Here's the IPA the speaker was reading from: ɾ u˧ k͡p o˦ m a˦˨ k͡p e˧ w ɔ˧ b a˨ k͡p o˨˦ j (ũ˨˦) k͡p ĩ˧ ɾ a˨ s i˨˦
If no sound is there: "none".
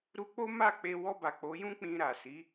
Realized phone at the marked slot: ũ˦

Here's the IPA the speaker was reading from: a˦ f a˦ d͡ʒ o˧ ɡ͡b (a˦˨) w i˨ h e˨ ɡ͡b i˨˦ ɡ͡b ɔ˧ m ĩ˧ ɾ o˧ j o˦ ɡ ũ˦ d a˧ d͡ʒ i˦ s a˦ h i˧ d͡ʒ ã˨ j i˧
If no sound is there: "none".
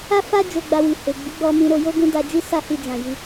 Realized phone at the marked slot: a˧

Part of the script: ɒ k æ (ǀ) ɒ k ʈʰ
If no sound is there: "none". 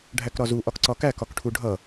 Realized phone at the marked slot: k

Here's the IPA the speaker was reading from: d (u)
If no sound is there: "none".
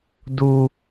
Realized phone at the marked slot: u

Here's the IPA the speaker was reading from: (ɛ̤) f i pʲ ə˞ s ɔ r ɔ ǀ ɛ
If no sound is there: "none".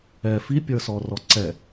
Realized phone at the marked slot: ɛ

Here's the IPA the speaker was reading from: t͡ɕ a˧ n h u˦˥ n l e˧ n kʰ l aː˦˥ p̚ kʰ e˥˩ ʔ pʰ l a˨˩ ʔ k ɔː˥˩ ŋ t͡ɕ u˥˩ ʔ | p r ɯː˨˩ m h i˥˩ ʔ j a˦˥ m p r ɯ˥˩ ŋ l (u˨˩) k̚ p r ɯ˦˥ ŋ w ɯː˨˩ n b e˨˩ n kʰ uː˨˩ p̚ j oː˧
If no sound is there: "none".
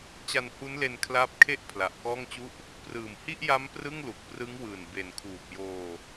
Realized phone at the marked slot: u˨˩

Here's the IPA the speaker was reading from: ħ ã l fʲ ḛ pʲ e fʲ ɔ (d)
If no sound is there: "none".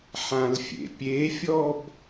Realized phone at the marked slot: b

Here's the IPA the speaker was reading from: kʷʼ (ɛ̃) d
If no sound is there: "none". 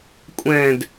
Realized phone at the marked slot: ɛ̃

